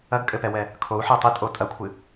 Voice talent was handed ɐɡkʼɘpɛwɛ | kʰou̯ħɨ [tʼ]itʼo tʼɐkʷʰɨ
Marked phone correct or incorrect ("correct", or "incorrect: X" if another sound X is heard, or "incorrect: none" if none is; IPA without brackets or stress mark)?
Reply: incorrect: tˤ